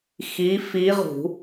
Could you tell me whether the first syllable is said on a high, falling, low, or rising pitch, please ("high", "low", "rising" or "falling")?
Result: rising